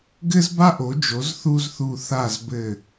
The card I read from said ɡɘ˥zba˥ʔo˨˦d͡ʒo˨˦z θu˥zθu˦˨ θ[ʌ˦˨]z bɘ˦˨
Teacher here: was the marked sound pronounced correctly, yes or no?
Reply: no